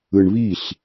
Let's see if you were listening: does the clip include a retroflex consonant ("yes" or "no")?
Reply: yes